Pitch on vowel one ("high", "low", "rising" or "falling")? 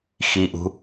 low